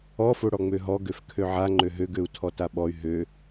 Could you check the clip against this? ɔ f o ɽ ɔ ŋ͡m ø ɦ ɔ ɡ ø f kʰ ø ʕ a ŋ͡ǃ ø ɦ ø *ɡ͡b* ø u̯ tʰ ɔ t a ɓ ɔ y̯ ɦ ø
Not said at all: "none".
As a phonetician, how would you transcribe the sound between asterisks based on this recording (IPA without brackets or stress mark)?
ɡ